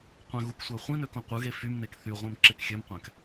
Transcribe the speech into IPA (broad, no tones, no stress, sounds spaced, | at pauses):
qʷ æ̃ ɣ u k sʷ æ χʷ ĩ n ø k õ qʷ ɯ ɣ e f y m n e k θ y ʁʷ ẽ m ǁ e k xʲ ø m qʷ æ̃ k